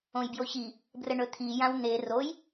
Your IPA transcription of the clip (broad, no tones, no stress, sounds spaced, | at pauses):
õ j b j o ç i | b r ə ɳ ɵ t̪ʰ i j ã w n̪ e r o j